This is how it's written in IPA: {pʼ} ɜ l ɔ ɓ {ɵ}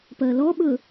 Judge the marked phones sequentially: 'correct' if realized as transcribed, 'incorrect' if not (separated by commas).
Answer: incorrect, correct